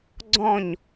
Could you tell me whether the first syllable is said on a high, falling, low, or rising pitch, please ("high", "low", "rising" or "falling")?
falling